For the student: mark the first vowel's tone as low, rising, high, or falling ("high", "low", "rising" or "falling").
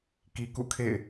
low